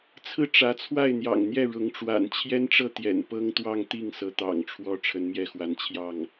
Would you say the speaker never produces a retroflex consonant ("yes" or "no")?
no